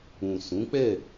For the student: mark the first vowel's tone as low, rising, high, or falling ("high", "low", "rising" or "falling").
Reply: low